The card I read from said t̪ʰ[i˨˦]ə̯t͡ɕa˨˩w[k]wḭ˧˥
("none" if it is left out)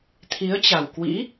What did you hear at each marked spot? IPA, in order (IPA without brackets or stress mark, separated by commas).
i˨˦, k